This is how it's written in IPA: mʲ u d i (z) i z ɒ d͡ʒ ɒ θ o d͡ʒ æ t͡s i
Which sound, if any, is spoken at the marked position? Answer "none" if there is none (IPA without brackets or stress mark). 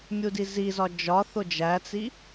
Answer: z